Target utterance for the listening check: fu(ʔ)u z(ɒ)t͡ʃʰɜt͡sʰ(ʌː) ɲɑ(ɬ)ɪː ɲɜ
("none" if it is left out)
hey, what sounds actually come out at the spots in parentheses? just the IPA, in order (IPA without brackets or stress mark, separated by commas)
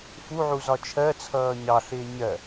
ʕ, ɒ, ʌː, ɬ